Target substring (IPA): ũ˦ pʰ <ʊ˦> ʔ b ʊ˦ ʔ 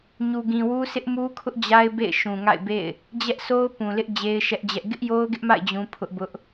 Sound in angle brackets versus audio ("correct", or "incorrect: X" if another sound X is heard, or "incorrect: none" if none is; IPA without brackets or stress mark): correct